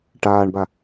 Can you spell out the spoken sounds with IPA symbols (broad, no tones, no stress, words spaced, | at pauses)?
ʈaːɳba